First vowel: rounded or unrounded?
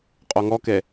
rounded